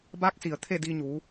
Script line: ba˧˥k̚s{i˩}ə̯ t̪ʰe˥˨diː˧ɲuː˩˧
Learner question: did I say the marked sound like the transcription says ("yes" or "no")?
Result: yes